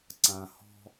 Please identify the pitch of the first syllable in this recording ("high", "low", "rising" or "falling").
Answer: low